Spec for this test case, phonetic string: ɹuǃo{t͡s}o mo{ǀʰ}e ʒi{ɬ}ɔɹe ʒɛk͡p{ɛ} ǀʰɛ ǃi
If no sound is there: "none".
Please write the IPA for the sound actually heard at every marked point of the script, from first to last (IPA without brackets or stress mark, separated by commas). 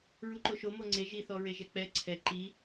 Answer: ʃ, ŋ͡ǀ, θ, ɛ